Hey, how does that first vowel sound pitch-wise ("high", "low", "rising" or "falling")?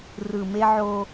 low